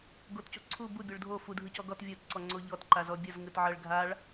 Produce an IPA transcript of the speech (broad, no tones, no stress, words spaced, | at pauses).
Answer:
ɡotcoǀʰu bu bʲoɭdʱo fu dʱɯcɔɡɔt vʲot ǀɔŋ͡ǀoʎɔt ǃazɔbʲɤz ŋɯtʕɤɭɡʱaɭ